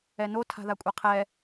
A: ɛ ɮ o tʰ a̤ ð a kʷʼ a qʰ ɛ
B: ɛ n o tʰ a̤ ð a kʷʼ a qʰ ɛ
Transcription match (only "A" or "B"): B